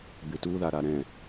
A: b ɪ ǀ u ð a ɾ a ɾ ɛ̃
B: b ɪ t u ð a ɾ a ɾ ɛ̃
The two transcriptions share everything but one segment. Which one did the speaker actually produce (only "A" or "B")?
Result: B